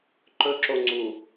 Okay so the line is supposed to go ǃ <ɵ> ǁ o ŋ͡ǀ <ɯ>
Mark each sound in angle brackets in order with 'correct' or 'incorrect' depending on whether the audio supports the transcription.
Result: correct, incorrect

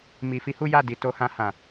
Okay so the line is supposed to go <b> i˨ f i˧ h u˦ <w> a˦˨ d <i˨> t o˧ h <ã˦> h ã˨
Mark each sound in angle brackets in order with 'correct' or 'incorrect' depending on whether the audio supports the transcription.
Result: incorrect, incorrect, correct, incorrect

